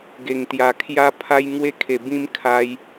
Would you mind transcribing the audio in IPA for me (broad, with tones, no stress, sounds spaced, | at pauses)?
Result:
ɡ e˨˩ ŋ t̪ j a˨˩ kʰ j a˦ pʰ a˦ j ŋ w e˥˧ kʰ e˨˩ b ĩ˦ m kʰ a˧ j